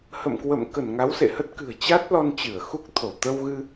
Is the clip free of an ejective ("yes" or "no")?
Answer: yes